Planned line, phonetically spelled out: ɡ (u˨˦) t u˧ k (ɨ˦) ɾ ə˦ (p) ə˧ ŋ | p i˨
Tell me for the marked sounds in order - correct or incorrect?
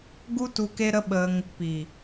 incorrect: u˦, incorrect: e˦, incorrect: ɓ

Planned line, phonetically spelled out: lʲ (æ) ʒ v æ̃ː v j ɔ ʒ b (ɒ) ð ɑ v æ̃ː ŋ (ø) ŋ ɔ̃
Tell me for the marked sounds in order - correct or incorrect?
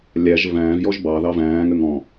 correct, incorrect: ɑ, correct

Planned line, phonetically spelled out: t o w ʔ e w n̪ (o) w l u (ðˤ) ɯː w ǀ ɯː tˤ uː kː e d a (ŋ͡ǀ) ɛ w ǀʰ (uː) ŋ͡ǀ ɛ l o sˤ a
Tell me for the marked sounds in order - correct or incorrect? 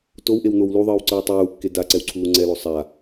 correct, correct, incorrect: ǀ, correct

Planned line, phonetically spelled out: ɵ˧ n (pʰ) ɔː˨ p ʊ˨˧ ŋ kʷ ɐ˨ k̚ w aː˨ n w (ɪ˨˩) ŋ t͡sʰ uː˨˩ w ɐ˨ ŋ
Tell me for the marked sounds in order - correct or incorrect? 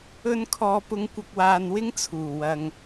incorrect: kʰ, incorrect: ɪ˥

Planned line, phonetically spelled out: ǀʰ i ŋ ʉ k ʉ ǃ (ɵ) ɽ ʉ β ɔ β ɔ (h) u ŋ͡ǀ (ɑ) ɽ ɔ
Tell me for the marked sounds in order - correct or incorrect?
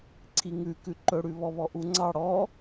correct, incorrect: ʔ, correct

